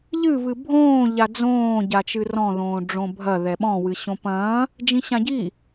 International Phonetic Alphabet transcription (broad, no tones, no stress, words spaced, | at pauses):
ʎɨvɨ bʱõː ʎad͡zõːɟa t͡ʃɨrɔ̃ðõː ɖ͡ʐõbʱɐ ðɛɓɔ̃wɨ ɕõpɐ̃ː | d͡ʒĩɕãɟi